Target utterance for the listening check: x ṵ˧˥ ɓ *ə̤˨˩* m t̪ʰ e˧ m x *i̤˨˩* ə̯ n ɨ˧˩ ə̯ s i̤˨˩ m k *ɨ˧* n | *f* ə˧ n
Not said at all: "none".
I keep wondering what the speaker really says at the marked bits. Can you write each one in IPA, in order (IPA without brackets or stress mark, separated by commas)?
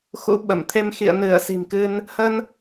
ə˧˩, ḭ˧˨, ɨ˧, h